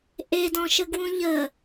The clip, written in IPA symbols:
ʔedɔ̃ʃəɡwũ ʎə

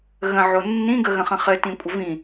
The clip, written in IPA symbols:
ɣə̃ʕo nːĩ ɡəɣə̃χə̃ χɘtĩkʷʼə vĩ

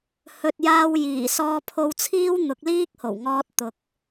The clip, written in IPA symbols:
hɵ˨t̚jaː˧w jiː˨˩ sɔː˧pʰo˧wt͡sʰiː˥w n̪ʊ˨˥k̚liː˥k̚ho˨˩wŋɔː˧t̚ t̪ʊ˨k̚

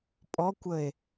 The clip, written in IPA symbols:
pʼɔkʷəe̯

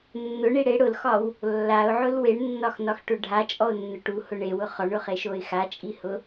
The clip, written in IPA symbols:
nːʊɳi ɽe ɽʊlxɒw | lːaʊ̯ʕʊl weɳnːɒxnɒxʈʊ ɖʱat͡ʃʼɔʊ̯nːʊ ʈuhʊ ɳewʊ χɒɳʊχeʃoɪ̯ xat͡ʃʼihʊ

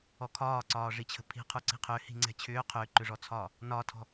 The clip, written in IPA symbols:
ɔkʰɒːǀɒː ʐit͡ɕʰə̤pʰi̤ qʰuǀi̤qʰʏː hi̤ŋ͡ǀɛ̤t͡ɕʰʏː qʰʏːǃʏʐɔt͡sʰɒː | nɒtʰɔ̤

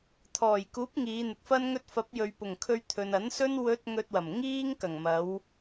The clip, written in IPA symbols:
t̪ʰɔː˨˩jkuː˨˥p̚ ŋiː˨˧n̪ɪ˨k̚fɐ˥nŋɵ˥t̚ fɐ˨˥p̚jɵ˨ɥ pʊ˨˩ŋ kʰɵ˧ɥt̪ʰɵ˨nɐ˨˥n sɵ˥n wɵ˧t̚ ŋɵ˧t̚wɐ˨˩m ŋiː˥ŋkɐ˨˩ŋ mɐ˨˧w

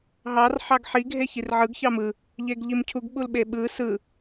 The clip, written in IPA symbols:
ɦɑr ħɑɡħi ɡʱeçirʕɯɡ çɑmɯ | ʎeɡʎimcʰuɡ ɓulɓeɓɯ sɯ

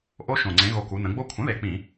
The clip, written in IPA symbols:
ʔo˦˥ʃõ˨˩ ŋ͡ǀẽ˩˧ɣo˨˩ ku˩˧nə̃˩˧ɡ͡bo˦˥ kʷʰə̃˩˥ðe˨˩ k͡pĩ˧˩˧

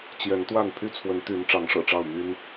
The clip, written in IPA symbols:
t͡ɕjɛ˨˦nt̪wa˥˨n pʰy˥˨t͡sʰwə˨˦n t̪y˨˦n ʈ͡ʂɑ˨˦ŋʂɤ̰˨˩ʈ͡ʂɑ˥˨ʊ̯ my˦n

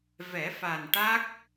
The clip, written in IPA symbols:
vɛ˨˩˦fa˨˩nʈa˦˥k̚

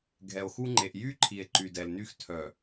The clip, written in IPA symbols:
ɡʱɛ˨o̯xu˦ŋ͡ǃe˨ʔ jy˦ ǃʰi˨e̯ǃy˨dɛ˨lny˦x tʰœ˨

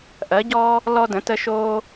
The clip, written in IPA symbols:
ʔɜ˩˥ ɟɔː˦ | lɔ˦də̃˩˥tə˦ ʃoː˦

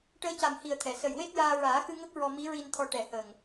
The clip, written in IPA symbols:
ʈəː˧˥ca˨˩mhi˨˩ə̯t̪ʰɛ˨˩˨ sə˨˩jwe˦˥t̚jaː˧ɹaː˨˩˦ xɨ˧ŋə˦˥k̚ ɹɔ˧mi˧˥ɹi˧nt̪ʰɔ˧ ʈɛ˨˩hə˨˩ŋ

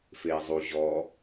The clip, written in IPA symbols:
fei̯zˤu ʑɔ

